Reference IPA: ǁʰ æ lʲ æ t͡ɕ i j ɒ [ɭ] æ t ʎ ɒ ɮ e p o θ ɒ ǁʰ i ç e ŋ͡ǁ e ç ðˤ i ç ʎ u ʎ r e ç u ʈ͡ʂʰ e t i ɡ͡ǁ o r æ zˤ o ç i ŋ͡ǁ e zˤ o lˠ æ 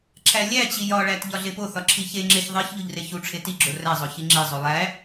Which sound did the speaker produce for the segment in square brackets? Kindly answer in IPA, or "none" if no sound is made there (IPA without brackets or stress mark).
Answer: ɭ